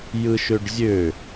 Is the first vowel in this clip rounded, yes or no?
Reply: no